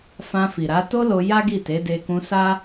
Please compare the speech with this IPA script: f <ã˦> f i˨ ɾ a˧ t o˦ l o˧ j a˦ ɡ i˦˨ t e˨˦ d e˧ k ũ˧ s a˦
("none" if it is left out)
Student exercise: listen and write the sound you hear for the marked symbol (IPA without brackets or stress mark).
ã˧